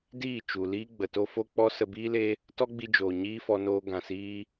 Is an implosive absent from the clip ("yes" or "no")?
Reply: yes